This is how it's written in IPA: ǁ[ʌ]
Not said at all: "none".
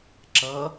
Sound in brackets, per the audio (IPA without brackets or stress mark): ʌ